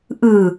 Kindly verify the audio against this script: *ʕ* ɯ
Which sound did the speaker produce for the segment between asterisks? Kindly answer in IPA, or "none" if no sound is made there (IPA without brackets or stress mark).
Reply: ʔ